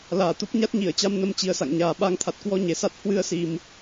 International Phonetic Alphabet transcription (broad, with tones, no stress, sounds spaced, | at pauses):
l aː˧˩ t̪ u˦˥ p̚ ɲ a˦˥ t̚ ɲ i˧˩ ə̯ t͡ɕ a˧ m n ə˧ m t͡ɕ i˨˦ ə̯ s a̰˧˨ ŋ ɲ aː˨˩ ɓ a˨˦ ŋ t̪ʰ a˨˩ t̚ k w ɔ˧ ɲ e˨˩ s a˦˥ t̚ h w ɨ˧ ə̯ s i˨˩ m